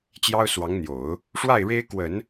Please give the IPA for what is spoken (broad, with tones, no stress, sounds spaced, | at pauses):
t͡ɕ j ɑ˥ ʊ̯ s w ɑ˧˥ ŋ n̪ j o˨˩˦ ʊ̯ | ʂ w a˥˩ ɪ̯ ɻ e˥ ɪ̯ k w ə˨˩˦ n